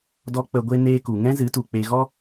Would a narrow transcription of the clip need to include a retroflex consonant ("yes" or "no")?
no